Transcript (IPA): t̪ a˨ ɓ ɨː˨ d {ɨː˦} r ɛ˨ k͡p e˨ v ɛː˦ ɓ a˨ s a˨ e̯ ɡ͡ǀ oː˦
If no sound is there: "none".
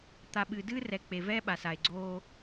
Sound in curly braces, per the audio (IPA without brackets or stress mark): ɨː˦